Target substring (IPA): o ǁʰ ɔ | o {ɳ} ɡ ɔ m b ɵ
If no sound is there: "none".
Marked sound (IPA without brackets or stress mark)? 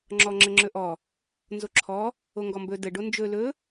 ŋ